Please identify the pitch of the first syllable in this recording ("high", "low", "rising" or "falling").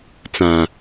low